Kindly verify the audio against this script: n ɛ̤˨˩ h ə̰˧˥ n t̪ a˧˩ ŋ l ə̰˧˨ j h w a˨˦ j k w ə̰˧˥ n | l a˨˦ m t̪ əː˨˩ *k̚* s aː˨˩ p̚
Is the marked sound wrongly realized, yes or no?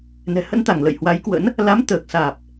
no